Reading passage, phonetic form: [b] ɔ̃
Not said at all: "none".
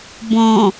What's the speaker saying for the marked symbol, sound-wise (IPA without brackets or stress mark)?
b